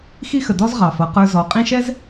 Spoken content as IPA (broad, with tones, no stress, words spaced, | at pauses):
xi˦xə˨dɔ˦z ʁɑ˨fʌ˨˦qə˞˦zɔ˨˦ qʼĩ˦ʃɛ˦z